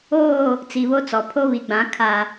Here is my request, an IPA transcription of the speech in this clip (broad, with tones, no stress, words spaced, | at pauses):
oː˦˨ | t͡si˨βo˦t͡sɔ˨ pʰo˦βi˨ɡ͡bã˨˦ kʰa˨